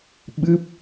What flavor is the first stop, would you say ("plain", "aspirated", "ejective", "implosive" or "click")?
implosive